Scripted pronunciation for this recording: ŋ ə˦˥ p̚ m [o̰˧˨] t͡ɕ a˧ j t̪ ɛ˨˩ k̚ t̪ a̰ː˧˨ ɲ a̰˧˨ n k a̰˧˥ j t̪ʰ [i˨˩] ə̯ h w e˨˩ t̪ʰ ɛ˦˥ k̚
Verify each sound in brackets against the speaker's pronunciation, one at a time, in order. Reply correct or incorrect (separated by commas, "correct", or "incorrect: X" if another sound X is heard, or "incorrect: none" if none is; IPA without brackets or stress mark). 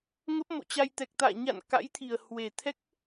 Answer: correct, correct